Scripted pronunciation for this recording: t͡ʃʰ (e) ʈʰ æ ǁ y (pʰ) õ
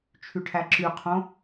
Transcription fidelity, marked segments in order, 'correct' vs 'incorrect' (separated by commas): incorrect, incorrect